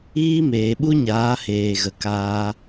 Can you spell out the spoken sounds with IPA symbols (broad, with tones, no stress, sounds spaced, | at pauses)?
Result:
iː˦ m eː˨ ɓ u˦ ɲ aː˨˦ h eː˧ ɣ ə˧ k aː˦